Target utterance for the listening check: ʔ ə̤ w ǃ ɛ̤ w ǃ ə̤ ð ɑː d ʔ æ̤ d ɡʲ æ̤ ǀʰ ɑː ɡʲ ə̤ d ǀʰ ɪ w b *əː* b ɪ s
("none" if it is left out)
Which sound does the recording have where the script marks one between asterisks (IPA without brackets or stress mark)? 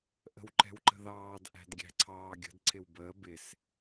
əː